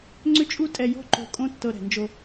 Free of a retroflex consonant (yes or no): yes